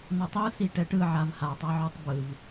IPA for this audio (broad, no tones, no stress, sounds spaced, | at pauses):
n ʌ tˤ u s i ʈ ɛ ʈ ɯ ʕ a v h a tˤ a ʕ u tˤ b ɯ v